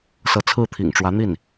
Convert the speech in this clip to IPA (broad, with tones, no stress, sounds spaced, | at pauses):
s ɤ˧˥ t͡sʰ ɹ̩˥˩ t̪ʰ ḭ˨˩ ŋ ʈ͡ʂ w ä˧˥ n̪ i˥˩ n